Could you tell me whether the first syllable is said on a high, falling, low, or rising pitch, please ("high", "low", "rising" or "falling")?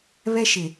high